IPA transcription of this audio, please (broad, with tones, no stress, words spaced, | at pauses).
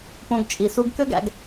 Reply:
põ˧ɡ t͡ʃʼi˧ su˥ɡ kø˥ɡæ̰˧ɡ